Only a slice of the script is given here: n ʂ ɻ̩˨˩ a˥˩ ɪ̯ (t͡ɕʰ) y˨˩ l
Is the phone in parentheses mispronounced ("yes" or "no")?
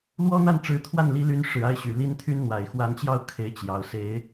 yes